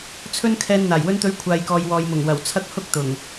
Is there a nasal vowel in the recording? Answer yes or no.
no